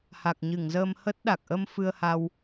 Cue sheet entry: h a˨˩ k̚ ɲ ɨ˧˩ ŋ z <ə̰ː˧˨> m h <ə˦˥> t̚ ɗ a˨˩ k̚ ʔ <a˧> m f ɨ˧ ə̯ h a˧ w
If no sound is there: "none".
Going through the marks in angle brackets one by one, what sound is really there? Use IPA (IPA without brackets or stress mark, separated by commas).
əː˧, ə˦˥, ə˧